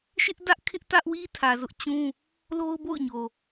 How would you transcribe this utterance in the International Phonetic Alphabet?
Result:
ʃ ɪ˦ ʔ d ä˦ ʔ kʰ ɪ˦ ʔ t ä˦ ʔ w i˦ tʰ ä˨ z ʊ˦ ʔ t͡ɕ ũ˦ | l o˦ ʊ̯ b o̰˦˨ ʊ̯ ɲ o˨

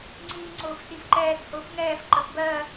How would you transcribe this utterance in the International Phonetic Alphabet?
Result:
ŋ͡ǀ iː ŋ͡ǀ ʊː f s i f ǃ ɛː s h ʊː f ŋ ɛː f ǃ ə f b ɜ

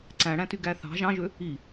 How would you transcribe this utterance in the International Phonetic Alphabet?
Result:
ǀ æ̃ ɽ æ̃ t y ɡ æ θ ɑ̤ ʒ ɑ̃ ʒ ø | i

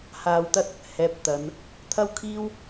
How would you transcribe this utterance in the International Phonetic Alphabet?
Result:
h aː˧ w t̪ ɐ˥ t̚ | h ɛː˨˥ p̚ t̪ ɐ˨˧ n | t̪ʰ ɐ˥ w kʰ iː˥ w

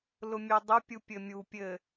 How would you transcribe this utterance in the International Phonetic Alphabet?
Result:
l ʊ mʲ œ dˤ ʊ pʲ u pʲ ɘ mʲ u pʲ ɘ

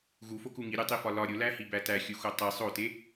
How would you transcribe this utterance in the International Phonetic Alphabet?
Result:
ɣ u f o k u ŋ i ɾʲ o tˤ i f ɒ l ɒ ɾʲ o l æ h i b æ t æ xʲ u x o tˤ i sˤ o t e

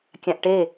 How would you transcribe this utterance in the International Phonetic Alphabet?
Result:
kʲ ã ʔ ʈ e

